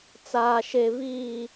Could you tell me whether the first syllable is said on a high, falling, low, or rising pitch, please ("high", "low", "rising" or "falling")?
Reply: low